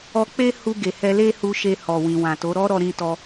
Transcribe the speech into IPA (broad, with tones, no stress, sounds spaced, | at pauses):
ɔ˧ k͡p e˦ h u˧ ɡ e˨ h ɛ˧ l e˦ h u˧ ʃ e˧ h ɔ˨ w ĩ˨ w ã˨ t o˨˦ ɾ ɔ˦ ɾ ɔ˧ ɾ ĩ˧ t ɔ˧